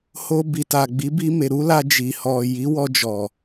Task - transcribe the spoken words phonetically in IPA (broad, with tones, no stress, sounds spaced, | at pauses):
h o˧ b i˨ t a˨ ɡ͡b i˨˦ b i˧ m e˨ ɾ u˨˦ l a˧ d͡ʒ i˨ h ɔ˨ j i˨˦ w ɔ˧ d͡ʒ ɔ˨